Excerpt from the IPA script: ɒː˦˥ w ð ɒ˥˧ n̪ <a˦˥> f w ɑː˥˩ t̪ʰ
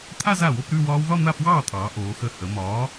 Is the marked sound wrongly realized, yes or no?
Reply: yes